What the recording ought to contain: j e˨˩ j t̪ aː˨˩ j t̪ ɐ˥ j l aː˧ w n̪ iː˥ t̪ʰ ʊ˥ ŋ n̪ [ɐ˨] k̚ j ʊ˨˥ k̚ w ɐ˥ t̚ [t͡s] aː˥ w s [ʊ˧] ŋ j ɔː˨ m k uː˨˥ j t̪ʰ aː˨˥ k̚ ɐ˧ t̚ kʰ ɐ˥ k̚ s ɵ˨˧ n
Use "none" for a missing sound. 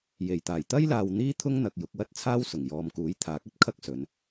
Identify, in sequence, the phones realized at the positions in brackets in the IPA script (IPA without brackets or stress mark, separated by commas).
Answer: ɐ˨, t͡sʰ, ʊ˨˩